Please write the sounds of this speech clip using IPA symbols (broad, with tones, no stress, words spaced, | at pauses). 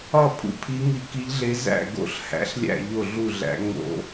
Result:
ɒ˥˩ pʰṵ˥˩pʰi˧˥ŋi˧˥ ki˧˥ʎɮe˧˥ zæ̰˥˩ɡo̰˧˥ɬ hæ̰˧˥ɬlʲæ̰˥˩ ʎo˥˩ɮu˥˩ɮæ̰˧˥ ŋ͡mo̰˧˥